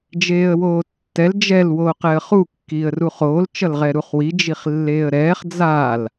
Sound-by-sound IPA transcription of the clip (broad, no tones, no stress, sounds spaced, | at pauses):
d͡ʒ eː ə̯ w oː tː ɛ l d͡ʒ ɛ l w oː q ɛ ə̯ χ u kː iː ə̯ r u χ oː l t͡ʃ ʌ l ʁ ɛ ɾ u χ w i d͡ʒ i χ lː eː ə̯ ɾ ɛː χ d͡z a l